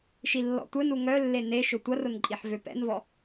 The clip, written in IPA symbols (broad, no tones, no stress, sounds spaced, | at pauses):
ʃ i lː ɔ̰ tʷ œ n u ŋ œ lː e n e ʃ ʊ tʷ ɐ r ʊ n ǃʼ i ħ v ø p ɛ̰ n v ɔ